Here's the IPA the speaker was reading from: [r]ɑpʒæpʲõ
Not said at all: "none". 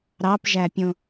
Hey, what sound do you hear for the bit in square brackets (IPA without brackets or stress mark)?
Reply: ɾ